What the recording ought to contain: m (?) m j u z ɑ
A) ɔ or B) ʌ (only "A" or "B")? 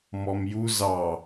A